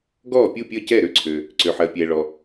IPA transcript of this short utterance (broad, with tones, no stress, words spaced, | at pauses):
ɡɔː˥˩pʲu˥˩pʲəː˥˩ cɛ˥˩ɾø˥˩ǀʰø˩ | ǀø˩ħɜ˩pʲɛː˩ɭɔ˩